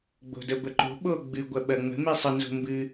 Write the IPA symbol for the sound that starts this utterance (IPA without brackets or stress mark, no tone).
ɡ͡b